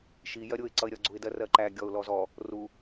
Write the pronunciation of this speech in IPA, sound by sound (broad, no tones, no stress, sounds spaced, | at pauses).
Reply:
ʃ i j ɜ ɾʲ ʊ ɪ̯ ǀ ʌ ɪ̯ ɾʲ ʌ ɡ͡ǀ u ɪ̯ d ɜ r ɜ ǃ æ ɡʲ ɔ ʊ̯ l ɔ z ɔ | r u